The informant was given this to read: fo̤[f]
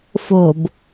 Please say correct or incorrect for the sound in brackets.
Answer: incorrect